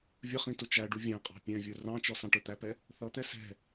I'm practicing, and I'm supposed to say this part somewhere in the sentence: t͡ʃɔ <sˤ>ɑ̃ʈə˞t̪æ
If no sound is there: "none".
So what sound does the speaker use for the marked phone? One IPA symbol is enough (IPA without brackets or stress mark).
s